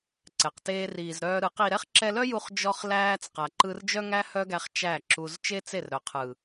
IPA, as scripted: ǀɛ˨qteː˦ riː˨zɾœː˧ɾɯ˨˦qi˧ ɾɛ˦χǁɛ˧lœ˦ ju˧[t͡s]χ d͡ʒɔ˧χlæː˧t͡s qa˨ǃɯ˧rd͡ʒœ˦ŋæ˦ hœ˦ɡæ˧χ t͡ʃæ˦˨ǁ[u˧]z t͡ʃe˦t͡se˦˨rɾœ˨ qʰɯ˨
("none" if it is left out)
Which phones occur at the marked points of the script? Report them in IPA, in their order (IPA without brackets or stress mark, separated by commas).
none, u˧